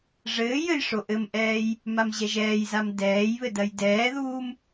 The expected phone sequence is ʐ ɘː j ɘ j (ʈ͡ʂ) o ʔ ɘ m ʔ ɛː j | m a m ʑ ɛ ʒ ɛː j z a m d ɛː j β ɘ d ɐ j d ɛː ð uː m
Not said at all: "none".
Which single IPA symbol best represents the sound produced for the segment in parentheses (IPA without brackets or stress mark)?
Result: ʂ